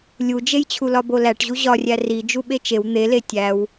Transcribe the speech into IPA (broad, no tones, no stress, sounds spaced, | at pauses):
lʲ u d͡ʒ e j t͡ɕʰ u l ɒ b o l æ ʈ ʑ u ʑ ɒ rʲ æ r i d͡ʒ u ɓ e t͡ʃ e w n̪ e l e tʲ æ w